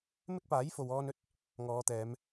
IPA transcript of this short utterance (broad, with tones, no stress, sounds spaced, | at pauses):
m ɪ˥ k̚ p aː˨˥ j f o˨ w ɔː˧ n ɵ˥ t̚ | ŋ ɔː˨˧ t̪ ɛː˨˧ m